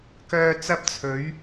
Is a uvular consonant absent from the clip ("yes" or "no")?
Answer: yes